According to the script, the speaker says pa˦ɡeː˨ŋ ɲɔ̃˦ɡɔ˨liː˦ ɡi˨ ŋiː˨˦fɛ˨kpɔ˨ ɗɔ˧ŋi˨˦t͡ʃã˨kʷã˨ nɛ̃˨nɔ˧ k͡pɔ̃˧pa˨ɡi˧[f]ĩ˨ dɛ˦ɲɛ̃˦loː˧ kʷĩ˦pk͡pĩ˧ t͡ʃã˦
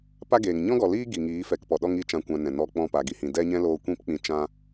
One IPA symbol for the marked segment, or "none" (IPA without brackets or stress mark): h